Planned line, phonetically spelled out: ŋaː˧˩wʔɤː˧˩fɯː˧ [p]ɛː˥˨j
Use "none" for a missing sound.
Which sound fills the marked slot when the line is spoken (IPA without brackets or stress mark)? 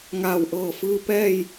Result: p